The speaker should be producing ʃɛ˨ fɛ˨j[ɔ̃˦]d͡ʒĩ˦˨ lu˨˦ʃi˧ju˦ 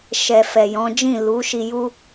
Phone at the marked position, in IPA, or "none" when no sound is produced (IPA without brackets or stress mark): ɔ̃˨˦